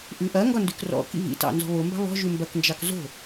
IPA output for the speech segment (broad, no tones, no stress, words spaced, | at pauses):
ʔʉʔɐŋɡɒ ndʉkrɔ̰kḭ vḭtɑ̰ nzɔ̤βombɑ̤ βɔ̤ʒʉ mbɐknd͡ʒɑk zo̤